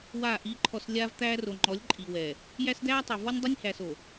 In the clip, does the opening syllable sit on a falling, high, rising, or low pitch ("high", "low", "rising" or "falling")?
falling